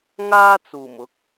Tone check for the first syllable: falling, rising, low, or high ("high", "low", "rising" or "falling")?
high